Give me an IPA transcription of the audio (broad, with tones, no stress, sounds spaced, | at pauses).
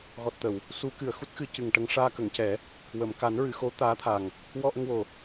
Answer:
ɣ ɔ˨˩ t̚ t̪ ə˨˩˨ w | s u˨˩˦ k ɨ˨˩˨ ə̯ x u˦˥ t̚ x ɨ˧˥ c ɨ˨˩ ŋ ʈ ə˧ ŋ ʂ aː˧ k ə˨˩˨ ŋ c ɛ˨˩˦ | w ə˨˩˨ m k a˨˩˦ n ɹ ɨ˨˩˨ x o˧˥ t̪ aː˧˥ t̪ʰ a˨˩ ŋ | w ɔ˧ ʔ ə˧ ŋ w o˨˩